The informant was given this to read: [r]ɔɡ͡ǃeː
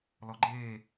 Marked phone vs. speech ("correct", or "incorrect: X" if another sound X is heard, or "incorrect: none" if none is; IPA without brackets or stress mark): incorrect: l